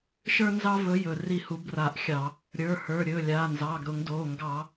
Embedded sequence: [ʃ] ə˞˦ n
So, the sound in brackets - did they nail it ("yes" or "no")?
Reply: yes